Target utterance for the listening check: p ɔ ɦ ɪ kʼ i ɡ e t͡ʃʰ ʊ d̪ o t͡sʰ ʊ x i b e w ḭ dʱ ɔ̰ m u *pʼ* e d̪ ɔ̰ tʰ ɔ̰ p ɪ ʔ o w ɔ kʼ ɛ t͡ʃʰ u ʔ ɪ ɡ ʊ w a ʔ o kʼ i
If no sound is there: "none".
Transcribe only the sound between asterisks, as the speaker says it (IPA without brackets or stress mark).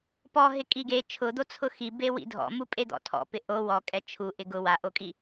pʼ